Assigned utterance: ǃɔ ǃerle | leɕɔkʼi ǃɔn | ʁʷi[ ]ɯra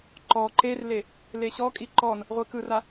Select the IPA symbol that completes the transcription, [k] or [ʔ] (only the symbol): k